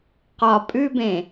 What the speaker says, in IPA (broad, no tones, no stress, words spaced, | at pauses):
qɒ pʼʉbẽ